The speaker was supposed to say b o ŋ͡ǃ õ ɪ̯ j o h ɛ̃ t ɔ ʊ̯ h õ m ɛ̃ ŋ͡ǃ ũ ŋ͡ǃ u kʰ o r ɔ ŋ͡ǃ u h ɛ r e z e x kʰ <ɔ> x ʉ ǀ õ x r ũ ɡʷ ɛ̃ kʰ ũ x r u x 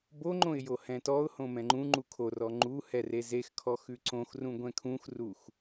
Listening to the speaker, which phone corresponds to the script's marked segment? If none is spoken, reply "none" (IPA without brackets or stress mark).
ɔ